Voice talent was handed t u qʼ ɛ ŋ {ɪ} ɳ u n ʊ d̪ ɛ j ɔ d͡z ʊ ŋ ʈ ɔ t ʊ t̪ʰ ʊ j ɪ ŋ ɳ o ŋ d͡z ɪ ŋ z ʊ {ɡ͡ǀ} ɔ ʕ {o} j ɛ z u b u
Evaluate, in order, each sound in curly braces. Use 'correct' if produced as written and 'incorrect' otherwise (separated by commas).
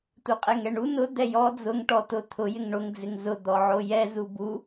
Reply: incorrect, incorrect, correct